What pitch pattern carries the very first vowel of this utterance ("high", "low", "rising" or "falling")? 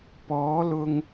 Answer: rising